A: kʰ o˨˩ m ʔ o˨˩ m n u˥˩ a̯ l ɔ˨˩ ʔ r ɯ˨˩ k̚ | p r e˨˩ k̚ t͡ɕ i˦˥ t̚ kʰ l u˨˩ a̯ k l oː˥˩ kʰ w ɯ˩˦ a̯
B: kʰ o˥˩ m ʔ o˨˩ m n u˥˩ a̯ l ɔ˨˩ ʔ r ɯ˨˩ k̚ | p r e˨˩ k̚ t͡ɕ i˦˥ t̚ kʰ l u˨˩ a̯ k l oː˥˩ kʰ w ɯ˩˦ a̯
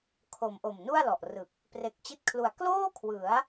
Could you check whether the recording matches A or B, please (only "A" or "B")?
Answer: A